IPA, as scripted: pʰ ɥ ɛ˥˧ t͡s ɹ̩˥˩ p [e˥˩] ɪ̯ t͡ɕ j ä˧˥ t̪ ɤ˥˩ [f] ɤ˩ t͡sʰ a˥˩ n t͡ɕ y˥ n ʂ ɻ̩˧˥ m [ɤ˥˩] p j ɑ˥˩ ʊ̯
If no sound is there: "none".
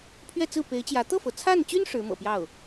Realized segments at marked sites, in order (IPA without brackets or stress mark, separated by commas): e˧˥, f, ɤ̰˨˩